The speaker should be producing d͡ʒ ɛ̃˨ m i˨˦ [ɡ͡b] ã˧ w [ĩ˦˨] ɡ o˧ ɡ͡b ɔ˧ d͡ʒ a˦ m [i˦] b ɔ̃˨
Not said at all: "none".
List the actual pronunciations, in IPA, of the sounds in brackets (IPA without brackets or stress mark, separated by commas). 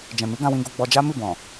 ɡ, ĩ˧, i˦˨